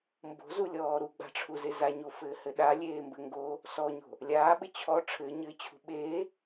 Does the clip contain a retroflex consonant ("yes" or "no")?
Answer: yes